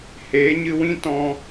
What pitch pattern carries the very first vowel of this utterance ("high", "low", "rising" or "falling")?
rising